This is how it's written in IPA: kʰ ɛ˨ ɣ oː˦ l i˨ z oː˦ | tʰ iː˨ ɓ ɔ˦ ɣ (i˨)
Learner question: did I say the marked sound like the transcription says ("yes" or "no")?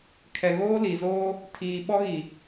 yes